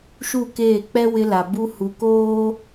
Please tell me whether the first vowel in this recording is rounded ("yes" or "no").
yes